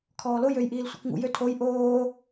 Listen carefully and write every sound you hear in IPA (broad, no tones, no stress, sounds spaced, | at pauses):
kʰ ɔː l o j ø j ʔ iː l sʷ ḭ k ŋ ṵ j ø tʰ o j ʔ oː